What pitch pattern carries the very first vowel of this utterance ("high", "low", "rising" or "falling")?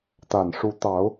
low